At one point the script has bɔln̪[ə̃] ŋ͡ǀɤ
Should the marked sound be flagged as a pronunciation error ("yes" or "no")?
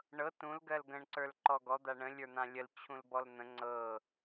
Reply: no